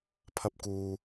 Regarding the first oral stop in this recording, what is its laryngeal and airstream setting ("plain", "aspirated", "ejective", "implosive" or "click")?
aspirated